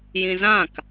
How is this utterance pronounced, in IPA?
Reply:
j ĩ z ã k

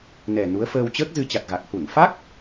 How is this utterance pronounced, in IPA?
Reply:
n ɛ˨˩ n u˨˦ ə̯ f əː˧ w t͡ɕ əː˦˥ k̚ z ɨ˧ t͡ɕ a˨˩ t̚ ɣ a˨˩ k̚ h u˧˩ n f a˦˥ k̚

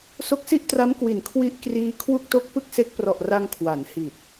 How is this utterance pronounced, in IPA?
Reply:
s o˦˥ k̚ s i˥˩ ʔ t r a˦˥ m k w i˩˦ n kʰ w i˦˥ ʔ k r iː˦˥ kʰ w u˥˩ k̚ t o˥˩ k̚ p ɯ˥˩ k̚ s e˦˥ k̚ p r ɔ˨˩ ʔ r a˧ ŋ kʰ w a˩˦ n h i˨˩ t̚

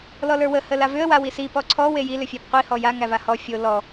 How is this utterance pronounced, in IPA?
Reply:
l ɔ l ə˞ w ə h ə l a v ʏ ə̯ w a w i s i p ɔ ǀʰ ɔ w e j i l ʏ fʲ æ p qʷ i h ɔ j a ŋ æ v a h ɔ fʲ o l ɔ

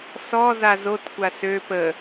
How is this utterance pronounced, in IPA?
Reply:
s ɔ z a z o t kʷ a s ø p ə

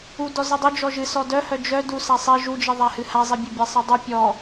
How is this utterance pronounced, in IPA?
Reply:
u d ɔ z i dˤ œ d͡ʒ ɔ ʒ ɨ s ɔ d œ h œ d͡ʒ œ d u s a sˤ i ʒ u d͡ʒ i ðˤ a h ɨ h a zˤ i bʲ œ bʲ a sˤ i dˤ ɨ pʲ ɔ

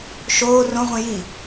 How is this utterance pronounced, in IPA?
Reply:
ʃ oː r õ ʁʷ ĩ j i

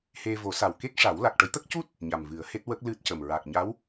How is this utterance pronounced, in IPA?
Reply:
h e˧ v o˨˩˦ s a˨˩ w k e˦˥ k̚ ʂ a˨˩˦ w l a˨˩ k̚ ʈ ə˨˩˦ j t̪ ə˦˥ k̚ c u˦˥ t̚ | ɲ a˨˩ m v ɨ˨˩˦ ə̯ h e˦˥ t̚ w ə˦˥ k̚ l ɨ˦˥ t̚ c ə˨˩ m ɹ a˨˩ k̚ ɲ a˧˥ w

